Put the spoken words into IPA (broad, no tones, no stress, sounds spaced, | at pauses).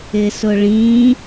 ɪ s ʊ ɭ ĩ